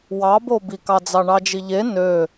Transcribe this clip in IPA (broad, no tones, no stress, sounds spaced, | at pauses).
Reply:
w ɑ b o b i k ɑ d͡z ɑ ɳ ɑ d͡ʒ i ʎ e n ø